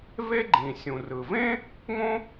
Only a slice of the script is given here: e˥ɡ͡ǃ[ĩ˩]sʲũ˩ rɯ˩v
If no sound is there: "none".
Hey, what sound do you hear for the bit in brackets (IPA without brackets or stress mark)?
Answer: ĩ˩